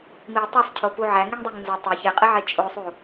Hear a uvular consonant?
yes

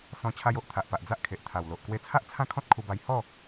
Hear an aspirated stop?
yes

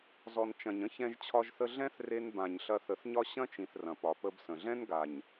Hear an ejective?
no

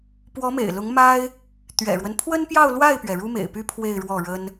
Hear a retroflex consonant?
yes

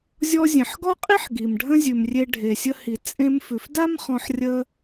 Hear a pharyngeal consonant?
yes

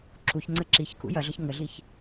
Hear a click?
yes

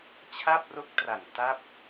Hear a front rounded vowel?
no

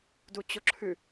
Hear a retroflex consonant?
no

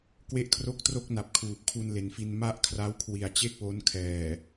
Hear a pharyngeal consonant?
no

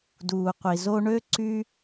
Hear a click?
yes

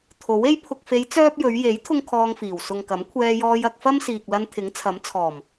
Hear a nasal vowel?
no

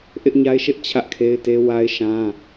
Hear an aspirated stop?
yes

